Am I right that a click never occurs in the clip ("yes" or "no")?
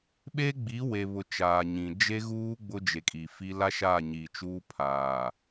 yes